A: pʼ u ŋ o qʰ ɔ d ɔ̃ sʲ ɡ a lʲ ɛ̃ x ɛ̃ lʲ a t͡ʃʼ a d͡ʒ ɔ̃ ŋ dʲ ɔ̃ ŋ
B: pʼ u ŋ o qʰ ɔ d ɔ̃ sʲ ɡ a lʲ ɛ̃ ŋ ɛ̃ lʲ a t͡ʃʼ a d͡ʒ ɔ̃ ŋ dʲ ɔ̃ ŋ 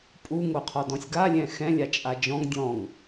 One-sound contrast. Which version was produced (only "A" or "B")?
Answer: A